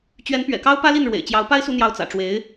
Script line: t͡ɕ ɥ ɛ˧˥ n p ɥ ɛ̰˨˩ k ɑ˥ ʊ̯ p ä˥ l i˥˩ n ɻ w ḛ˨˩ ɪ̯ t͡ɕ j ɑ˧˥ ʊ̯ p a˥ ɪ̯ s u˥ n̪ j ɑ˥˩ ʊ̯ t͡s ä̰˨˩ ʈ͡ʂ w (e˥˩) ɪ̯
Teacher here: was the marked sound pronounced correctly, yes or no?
no